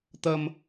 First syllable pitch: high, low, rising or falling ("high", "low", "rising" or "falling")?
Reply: high